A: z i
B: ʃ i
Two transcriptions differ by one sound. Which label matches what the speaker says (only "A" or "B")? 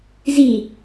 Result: A